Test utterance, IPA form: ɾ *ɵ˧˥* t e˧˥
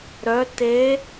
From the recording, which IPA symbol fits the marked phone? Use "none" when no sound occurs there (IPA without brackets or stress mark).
œ˧˥